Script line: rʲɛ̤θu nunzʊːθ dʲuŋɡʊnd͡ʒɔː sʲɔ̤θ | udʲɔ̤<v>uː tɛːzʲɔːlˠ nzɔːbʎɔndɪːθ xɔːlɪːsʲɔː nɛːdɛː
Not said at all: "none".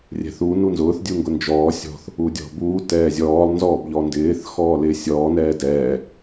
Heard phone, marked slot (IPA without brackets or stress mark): b